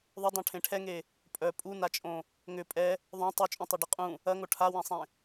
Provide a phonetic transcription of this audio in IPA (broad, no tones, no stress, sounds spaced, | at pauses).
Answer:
ðˤ ʏ dˤ õ ʈʰ ẽ ʈʰ ɛ ŋ e | pʼ œ pʼ u n a t͡ʃʼ õ | ŋ ʏ pʼ ɛ | ðˤ õ tˤ u t͡ʃʼ ũ tˤ a ɖ e qʼ ũ | ɐ ŋ o ʈʰ a w ẽ sˤ ẽ